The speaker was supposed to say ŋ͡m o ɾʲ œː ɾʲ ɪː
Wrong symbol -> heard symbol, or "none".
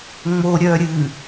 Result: ɪː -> ɨː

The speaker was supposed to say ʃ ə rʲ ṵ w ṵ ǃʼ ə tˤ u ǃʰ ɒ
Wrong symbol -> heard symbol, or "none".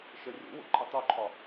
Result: none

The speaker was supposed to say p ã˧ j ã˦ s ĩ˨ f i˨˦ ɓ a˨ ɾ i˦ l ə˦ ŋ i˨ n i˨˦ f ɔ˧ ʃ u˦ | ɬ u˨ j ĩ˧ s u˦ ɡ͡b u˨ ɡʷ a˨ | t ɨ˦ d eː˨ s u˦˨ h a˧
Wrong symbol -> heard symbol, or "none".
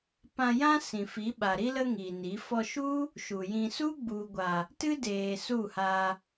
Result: ɬ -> ʃ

